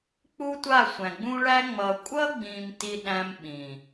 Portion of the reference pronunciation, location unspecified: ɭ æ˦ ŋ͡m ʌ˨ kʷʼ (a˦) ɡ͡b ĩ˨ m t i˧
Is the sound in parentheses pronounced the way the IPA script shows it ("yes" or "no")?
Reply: no